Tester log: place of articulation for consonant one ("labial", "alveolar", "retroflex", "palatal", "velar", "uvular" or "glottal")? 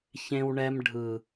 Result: palatal